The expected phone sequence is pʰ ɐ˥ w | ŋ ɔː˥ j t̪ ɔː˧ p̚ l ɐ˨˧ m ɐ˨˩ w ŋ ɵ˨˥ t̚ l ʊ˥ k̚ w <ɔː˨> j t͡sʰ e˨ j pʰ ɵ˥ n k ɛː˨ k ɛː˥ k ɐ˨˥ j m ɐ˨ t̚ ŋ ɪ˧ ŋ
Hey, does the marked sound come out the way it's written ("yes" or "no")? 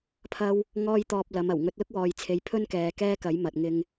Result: yes